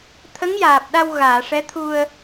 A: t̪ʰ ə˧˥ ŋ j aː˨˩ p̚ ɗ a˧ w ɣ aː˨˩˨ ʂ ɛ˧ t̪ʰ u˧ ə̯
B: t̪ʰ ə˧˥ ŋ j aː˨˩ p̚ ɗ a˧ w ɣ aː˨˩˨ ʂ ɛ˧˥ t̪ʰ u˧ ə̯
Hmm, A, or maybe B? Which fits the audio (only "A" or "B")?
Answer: B